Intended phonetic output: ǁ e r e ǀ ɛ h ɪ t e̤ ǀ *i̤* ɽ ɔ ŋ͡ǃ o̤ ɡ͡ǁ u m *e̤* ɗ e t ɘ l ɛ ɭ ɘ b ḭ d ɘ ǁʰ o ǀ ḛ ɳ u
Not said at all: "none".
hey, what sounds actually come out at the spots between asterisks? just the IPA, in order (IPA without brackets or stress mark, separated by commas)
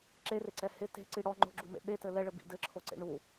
i, ḛ